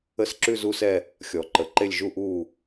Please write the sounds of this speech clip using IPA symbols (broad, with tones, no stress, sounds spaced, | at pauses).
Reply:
ə˦˨ s ǁ ʉ˦˨ z u˦˨ s ɛ˦˨ | xʲ ɔ˨˩˦ ǃ ə˨˩˦ ǃ e˦˨ lʲ ʒ u˦˨ ʔ uː˦˨